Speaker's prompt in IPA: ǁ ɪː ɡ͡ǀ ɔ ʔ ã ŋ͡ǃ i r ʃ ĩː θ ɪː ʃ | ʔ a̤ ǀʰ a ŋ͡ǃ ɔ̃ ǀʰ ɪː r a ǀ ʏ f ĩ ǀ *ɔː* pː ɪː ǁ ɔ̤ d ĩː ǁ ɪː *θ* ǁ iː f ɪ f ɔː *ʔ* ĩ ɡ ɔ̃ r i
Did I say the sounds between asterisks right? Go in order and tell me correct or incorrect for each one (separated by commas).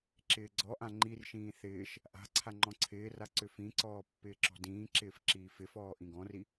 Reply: correct, incorrect, correct